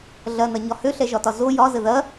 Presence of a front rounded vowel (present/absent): present